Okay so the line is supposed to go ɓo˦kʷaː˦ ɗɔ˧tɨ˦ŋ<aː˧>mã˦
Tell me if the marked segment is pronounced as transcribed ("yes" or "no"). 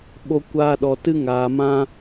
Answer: yes